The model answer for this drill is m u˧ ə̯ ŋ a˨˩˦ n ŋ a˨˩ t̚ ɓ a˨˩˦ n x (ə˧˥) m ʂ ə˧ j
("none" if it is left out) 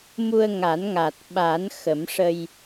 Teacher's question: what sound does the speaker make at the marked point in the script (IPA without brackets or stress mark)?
ə˨˩˦